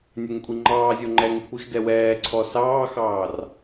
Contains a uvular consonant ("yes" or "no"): no